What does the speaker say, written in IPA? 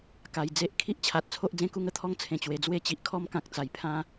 k a˨˩ j d͡z e˦ ʔ kʰ i˦ ʔ t͡ɕʰ a˨ t̚ t͡sʰ o˦ ʔ d͡z ẽ˥˧ k u˥˧ ŋ ə˦ t̪ʰ ɔ˦ ŋ t͡sʰ ẽ˨˩ t͡ɕ w e˨˩ d͡z w e˥˧ t͡ɕ i˨ ʔ kʰ ɔ˦ m k ã˨ k̚ t͡s a˨˩ j pʰ ã˦

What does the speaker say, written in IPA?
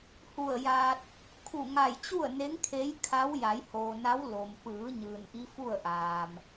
h u˧˩ ə̯ j aː˧ t̚ | kʰ u˧˩ ŋ a˧˩ j t͡ɕ u˥˨ ə̯ n e˧˥ ŋ kʰ e˧˥ j kʰ a˧˥ w j a˩˧ j h oː˩ n a˧˥ w l o˩ m p ɯː˩˧ ɲ ɯː˩ n ʔ i˧˥ f u˥˨ ə̯ ʔ aː˩ m

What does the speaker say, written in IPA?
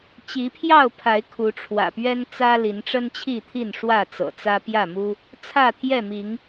t͡ɕ i˨˦ pʰ j ɑ˥˨ ʊ̯ pʰ a˨˦ ɪ̯ kʰ u˨˦ ʈ͡ʂʰ w ä̰˨˩ p ɥ ɛ˦ n t͡s ä˦ l i˨˦ n ʈ͡ʂ ə˦ n t͡ɕʰ i˥˨ t̪ʰ i˥˨ n ʂ w ä˥˨ t͡s ɤ̰˨˩ t͡s ä˦ p j ä˥˨ m u˦ | t͡sʰ ä˥˨ t̪ʰ j ɛ˥˨ m i˨˦ ŋ

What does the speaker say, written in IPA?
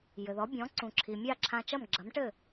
j ɘ˩ ð ɔ˩˥ bʲ ɔ̃˩˥ ǀ ũ˩ ǁʰ i˩ mʲ a˥˩ ǁʰ ã˧ t͡ʃ ɐ˥˩ m ɡ͡ǁ ɐ˩˥ m ʈ ɘ˥˩

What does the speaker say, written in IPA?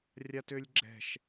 rʲ a t ø lʲ ɡ͡ǁ ɛ̤ ʃ

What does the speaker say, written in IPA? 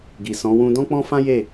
ɡ i˨ s ɔ̃˨˦ w ũ˧ d ɔ̃˦ k͡p ɔ̃˦ f ã˦ j e˦˨

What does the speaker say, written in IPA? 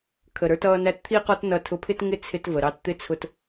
kʰ ə˨ ɾ ə˞˧ t ʌː˧ n æ˧ t t̪ʰ i˦ q ɔ˦ t n ʌ˧ tʰ ʊ˧ pʰ ɪ˦ t ŋ ɪ˦ t͡sʰ ɪ˧ t v ə˨ ɾ ɑ˧ t t̪ ɪ˦ t͡sʰ ʊ˧ t

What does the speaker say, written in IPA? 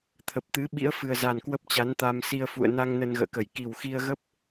t̪ʰ ə˨˩ p̚ t̪ ɨ˨˦ ɓ ḭ˧˥ ə̯ f ɨ˨˩ ə̯ z a˨˩ n k w ə˦˥ p̚ t͡ɕ a˨˦ n t̪ a˧ m s i˧ ə̯ f ṵ˧˨ ə̯ n a˧ ŋ n ə˧ n ɣ ə̰ː˧˨ k ə˧˩ j k i˨˩ w x i˧ ə̯ ɣ ə˦˥ p̚

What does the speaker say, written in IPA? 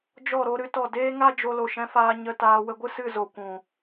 d͡ʒ ɔ˦˨ ɾ o˧ ɾ ɨ˧ t ɔ˦˨ d eː˦ ŋ a˦ d͡ʒ o˧ l o˨ ʃ ɛ̃˧ f aː˧ ɲ ə˧ t aː˧ w ə˧ ɡʷ ɨ˦ s ɨ˦˨ z o˨ kʷ ũ˨

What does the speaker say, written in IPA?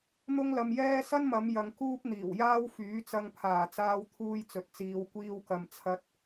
n̪ ʊ˥ ŋ l ɐ˧ m j ɛː˥ s ɐ˥ n m ɐ˨˧ m j ɐ˨ ŋ k uː˥ p̚ n̪ iː˨˩ w j aː˥ w f yː˨˥ t͡s ɐ˧ ŋ pʰ aː˨˩ t͡s aː˧ w t̪ʰ uː˧ j t͡s ɵ˨ t̚ t͡s iː˨˧ w kʷ iː˧ w k ɐ˨ m t͡sʰ ɐ˧ t̚

